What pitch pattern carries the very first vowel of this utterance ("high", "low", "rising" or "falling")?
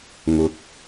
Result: low